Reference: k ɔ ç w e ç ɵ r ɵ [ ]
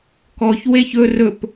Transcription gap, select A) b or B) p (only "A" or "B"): B